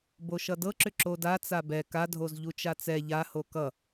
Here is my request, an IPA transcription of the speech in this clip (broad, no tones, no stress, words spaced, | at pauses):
boʃʌdɤǁʏ ǁoda t͡sabɛ kadʱoz ʎut͡ʃat͡sɛ ʎaho kʌ